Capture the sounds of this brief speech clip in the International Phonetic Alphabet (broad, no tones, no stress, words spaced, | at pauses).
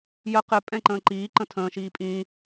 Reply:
jə qɪ pʼɛ̃ǃə̃ːǃiː ǃə̃tʰə̃ː ʃiːpʼĩː